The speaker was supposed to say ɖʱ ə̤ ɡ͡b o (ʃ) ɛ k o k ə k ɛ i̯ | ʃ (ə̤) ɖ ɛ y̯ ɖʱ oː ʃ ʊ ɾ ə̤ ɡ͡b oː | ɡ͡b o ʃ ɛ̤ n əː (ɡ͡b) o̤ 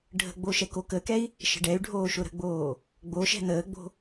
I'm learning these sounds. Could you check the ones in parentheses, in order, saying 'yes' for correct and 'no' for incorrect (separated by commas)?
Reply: yes, yes, yes